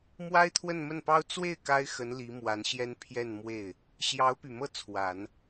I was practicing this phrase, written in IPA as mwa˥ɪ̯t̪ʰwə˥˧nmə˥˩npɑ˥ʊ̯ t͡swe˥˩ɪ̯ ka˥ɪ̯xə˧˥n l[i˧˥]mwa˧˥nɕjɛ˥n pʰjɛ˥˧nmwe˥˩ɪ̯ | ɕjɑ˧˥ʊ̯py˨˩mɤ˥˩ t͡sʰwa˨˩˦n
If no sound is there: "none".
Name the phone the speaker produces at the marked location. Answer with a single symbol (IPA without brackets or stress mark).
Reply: i˧˥